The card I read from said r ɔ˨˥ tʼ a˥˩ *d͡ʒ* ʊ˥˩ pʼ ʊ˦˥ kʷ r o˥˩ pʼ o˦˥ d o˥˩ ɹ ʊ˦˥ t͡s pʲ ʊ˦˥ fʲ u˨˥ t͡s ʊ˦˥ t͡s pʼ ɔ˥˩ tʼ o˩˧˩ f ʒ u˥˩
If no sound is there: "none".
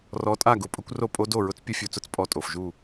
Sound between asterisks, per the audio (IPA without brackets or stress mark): ɡ